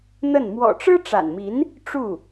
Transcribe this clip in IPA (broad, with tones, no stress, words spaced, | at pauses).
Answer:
n̪ə˥˩n mwɔ̰˨˩ʈ͡ʂɻ̩˥ ʈ͡ʂa̰˨˩nmi˧˥n | ʈ͡ʂu˥˩